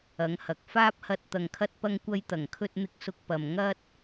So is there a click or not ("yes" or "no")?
no